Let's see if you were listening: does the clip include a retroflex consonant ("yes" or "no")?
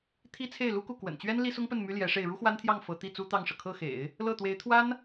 yes